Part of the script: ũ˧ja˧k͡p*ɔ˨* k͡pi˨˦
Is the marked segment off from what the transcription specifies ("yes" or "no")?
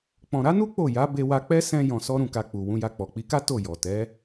no